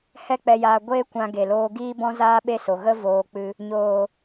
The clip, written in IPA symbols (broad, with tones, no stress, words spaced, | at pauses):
hɛ˦k͡pɛ˧jaː˧ ɡʷeː˦kʷã˧ ɡe˨loː˧ ɡiː˦bɔ̃˦zaː˦ɓe˦ so˧ ɣə˦voː˧k͡pɨ˧ | ɲoː˨